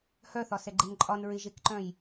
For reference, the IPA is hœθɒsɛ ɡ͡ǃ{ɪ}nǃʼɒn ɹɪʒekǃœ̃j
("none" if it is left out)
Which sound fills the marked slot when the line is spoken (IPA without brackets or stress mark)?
ɪ